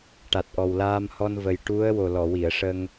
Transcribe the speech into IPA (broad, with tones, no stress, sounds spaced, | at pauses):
ʈ a˨˩ t̚ ʔ ɔ˨˩ w l aː˧ m h ɔ˧ n v ə˨˩ j ʈ u˧˥ ə̯ w o˨˩ l ɔ˨˩˨ w i˨˩˨ ə̯ ʂ ə˧ ŋ